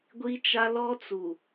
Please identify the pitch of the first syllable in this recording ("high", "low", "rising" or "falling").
high